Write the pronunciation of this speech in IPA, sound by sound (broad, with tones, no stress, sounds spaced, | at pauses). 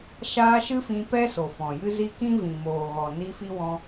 ʃ aː˧ ʃ ɨ˦ f ĩ˧ p ɛ˦ s o˨ f ɔ̃˨ j ɨ˦ z i˦ k ĩ˦ v ĩ˨ m oː˨ ɣ ɔ˨ n i˧ f i˧ w ɔ̃˧